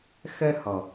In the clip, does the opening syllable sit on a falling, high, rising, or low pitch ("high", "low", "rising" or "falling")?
high